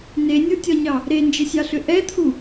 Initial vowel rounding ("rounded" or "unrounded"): unrounded